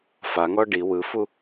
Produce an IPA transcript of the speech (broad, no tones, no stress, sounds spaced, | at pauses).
f a ŋ ɔ ɖ i w ɯ f u